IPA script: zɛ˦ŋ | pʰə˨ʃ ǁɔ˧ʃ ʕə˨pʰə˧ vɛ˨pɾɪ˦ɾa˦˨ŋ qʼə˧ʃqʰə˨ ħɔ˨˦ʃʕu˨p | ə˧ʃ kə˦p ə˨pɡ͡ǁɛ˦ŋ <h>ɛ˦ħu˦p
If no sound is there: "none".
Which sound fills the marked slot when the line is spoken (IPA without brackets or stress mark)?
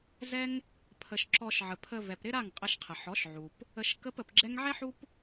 ʕ